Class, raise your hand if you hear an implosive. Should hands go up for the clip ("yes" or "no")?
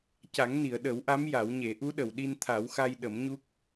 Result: yes